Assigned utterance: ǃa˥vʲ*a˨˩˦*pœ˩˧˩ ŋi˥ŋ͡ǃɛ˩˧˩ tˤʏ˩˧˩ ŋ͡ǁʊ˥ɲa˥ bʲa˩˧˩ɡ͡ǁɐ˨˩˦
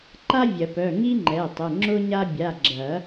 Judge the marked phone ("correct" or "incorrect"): incorrect